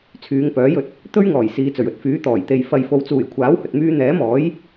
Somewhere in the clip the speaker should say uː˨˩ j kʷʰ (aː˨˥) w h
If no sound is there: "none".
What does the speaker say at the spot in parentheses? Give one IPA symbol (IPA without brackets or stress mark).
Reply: aː˨˥